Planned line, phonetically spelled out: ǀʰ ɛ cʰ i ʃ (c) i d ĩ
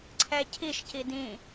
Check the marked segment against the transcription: correct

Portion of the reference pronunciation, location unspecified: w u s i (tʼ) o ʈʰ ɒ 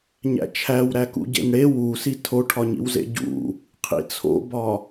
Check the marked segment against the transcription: incorrect: tʰ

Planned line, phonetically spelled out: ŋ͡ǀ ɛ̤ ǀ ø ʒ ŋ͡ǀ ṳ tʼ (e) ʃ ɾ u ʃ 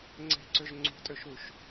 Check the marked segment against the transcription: incorrect: ø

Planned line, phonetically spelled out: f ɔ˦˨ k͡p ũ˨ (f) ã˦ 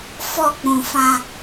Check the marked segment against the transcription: correct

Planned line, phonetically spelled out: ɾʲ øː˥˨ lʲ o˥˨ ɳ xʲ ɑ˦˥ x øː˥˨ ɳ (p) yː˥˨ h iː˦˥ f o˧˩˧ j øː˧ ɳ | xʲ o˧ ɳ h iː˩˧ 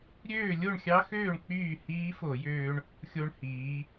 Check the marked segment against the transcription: incorrect: k͡p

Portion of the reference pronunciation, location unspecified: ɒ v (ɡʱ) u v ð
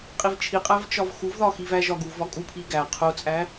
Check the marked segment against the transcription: incorrect: x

